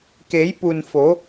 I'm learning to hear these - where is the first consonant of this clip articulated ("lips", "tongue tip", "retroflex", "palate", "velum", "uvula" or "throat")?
velum